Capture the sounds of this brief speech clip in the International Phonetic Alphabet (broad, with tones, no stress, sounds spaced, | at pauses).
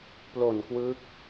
p l o˨˩ n k w ɯ˦˥ k̚